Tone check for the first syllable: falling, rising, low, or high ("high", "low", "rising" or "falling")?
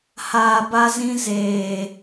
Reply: low